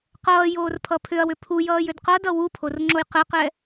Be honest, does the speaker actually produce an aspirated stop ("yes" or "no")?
yes